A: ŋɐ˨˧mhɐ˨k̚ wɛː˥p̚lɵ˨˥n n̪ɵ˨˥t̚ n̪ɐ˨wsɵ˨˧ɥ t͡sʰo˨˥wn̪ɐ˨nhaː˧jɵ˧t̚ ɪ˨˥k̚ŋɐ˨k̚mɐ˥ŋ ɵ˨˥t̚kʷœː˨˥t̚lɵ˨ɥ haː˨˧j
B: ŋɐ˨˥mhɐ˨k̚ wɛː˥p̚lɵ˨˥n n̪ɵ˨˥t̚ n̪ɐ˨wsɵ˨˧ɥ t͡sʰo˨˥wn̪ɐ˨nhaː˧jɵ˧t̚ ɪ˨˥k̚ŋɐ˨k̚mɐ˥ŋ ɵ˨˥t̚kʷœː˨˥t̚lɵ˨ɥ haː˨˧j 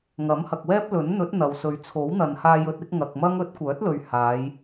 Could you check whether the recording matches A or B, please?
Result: B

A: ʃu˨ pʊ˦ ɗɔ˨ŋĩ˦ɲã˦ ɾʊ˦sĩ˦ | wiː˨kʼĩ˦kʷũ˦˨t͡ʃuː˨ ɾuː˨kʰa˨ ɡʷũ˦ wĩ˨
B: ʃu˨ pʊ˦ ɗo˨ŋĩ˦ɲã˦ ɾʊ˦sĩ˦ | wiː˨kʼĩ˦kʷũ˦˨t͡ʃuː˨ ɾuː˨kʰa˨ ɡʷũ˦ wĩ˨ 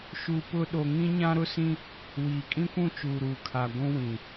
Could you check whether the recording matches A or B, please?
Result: B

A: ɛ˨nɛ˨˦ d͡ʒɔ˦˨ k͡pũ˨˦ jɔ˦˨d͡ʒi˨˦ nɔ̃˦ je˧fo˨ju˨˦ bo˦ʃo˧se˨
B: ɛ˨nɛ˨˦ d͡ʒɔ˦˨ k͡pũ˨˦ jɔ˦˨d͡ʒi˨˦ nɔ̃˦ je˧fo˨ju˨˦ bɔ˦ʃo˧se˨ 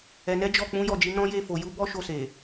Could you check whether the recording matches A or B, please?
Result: B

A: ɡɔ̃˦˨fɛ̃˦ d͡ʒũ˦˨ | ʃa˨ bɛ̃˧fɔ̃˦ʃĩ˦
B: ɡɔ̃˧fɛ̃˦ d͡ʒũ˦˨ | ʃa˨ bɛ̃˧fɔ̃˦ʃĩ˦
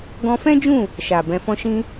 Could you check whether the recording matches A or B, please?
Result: B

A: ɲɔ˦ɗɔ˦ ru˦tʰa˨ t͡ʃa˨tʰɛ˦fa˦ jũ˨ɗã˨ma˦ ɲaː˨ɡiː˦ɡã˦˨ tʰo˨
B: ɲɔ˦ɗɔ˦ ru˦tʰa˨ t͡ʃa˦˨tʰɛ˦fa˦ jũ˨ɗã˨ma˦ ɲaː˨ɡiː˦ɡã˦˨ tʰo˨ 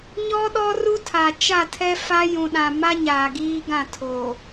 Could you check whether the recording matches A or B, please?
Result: B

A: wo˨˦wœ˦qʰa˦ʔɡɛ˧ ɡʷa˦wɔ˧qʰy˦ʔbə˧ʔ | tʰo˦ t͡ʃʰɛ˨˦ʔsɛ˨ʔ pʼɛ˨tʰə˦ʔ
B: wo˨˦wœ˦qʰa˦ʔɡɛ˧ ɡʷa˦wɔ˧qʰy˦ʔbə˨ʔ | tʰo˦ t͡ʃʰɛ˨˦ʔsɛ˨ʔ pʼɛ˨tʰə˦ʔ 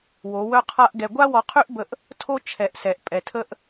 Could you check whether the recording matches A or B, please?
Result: A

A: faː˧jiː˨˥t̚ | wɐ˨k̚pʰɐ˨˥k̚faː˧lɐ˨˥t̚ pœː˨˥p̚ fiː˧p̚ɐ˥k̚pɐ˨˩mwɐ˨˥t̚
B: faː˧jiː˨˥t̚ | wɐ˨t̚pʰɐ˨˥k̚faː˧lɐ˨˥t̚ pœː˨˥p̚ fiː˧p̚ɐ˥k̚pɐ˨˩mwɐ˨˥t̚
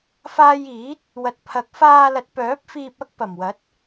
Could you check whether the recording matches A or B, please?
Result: B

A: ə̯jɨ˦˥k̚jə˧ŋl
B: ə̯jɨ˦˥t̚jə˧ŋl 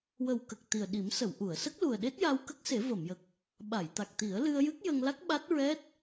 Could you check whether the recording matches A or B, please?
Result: A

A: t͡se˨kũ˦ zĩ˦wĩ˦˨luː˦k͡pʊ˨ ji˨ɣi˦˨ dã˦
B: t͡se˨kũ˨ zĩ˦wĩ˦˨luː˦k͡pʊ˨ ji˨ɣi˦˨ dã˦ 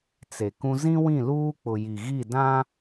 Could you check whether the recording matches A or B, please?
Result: A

